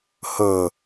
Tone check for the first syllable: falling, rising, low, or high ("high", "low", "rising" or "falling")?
low